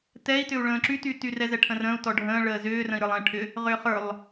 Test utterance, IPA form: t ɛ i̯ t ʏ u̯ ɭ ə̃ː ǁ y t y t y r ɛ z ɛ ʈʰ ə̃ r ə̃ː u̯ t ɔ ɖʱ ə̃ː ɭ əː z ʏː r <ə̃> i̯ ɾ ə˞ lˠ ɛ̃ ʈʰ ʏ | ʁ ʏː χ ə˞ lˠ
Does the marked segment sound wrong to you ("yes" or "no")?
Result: no